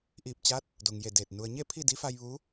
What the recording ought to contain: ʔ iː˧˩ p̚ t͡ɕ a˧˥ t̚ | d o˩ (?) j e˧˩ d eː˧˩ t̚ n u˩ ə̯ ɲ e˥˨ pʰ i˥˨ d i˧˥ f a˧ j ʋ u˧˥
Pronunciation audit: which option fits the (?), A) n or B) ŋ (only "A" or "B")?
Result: B